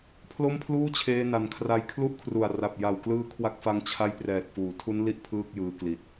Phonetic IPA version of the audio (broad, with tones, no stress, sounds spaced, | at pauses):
pʰ l o˥˩ m pʰ l uː˥˩ t͡ɕʰ eː˧ n a˩˦ n kʰ r a˧ j kʰ l u˥˩ ʔ kʰ r u˨˩ a̯ r a˨˩ p̚ j a˨˩ w k l ɯː˦˥ kʰ w a˦˥ k̚ f a˦˥ ŋ t͡ɕʰ a˦˥ j p r ɛː˨˩ t̚ f uː˩˦ tʰ u˦˥ n l i˦˥ ʔ pʰ ɯː˥˩ k̚ j ɯː˧ k l i˨˩ t̚